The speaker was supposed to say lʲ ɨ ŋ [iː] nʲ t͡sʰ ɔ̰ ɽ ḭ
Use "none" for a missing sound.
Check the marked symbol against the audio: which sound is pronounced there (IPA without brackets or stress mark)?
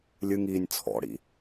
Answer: iː